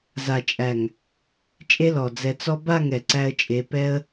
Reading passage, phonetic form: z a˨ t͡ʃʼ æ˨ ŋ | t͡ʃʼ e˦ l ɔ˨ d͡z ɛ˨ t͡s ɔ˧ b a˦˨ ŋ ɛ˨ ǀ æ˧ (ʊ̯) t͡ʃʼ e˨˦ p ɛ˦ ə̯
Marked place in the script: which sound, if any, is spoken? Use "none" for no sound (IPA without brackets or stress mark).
ə̯